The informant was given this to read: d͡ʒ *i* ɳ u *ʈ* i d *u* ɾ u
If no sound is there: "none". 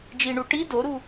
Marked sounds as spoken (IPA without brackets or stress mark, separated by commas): i, ʈ, o